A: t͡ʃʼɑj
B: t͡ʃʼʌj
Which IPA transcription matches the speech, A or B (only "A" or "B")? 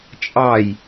A